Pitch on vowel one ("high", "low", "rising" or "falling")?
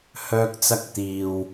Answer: high